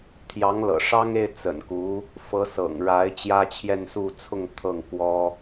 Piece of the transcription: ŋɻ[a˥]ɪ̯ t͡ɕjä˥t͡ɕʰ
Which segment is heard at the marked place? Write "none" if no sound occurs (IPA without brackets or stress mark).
a˧˥